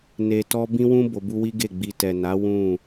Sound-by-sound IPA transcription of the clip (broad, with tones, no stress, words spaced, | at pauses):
ne˧tɔ˦ bĩ˦wũ˦ bo˧bu˦wi˦ɡe˦˨ ɡ͡bi˧ tɛ˨na˨˦ wũ˦˨